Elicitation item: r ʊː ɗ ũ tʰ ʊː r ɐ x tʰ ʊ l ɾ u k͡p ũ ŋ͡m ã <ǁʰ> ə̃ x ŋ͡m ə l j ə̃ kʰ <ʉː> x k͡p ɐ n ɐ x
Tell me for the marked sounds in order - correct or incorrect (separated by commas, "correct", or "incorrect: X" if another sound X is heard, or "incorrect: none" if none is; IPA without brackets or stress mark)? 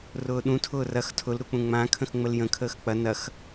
incorrect: kʰ, incorrect: əː